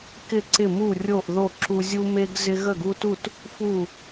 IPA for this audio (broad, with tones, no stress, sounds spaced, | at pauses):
k ɪ˥˩ ǀ ɪ˥˩ m u˥˩ rʲ o˥˩ ʔ ð o˥˩ ǁ u˦ zʲ u˦ m e˦ ɡ z ɪ˦ ɣ ə˥˩ ɡ u˦ t u˥˩ t | f u˥˩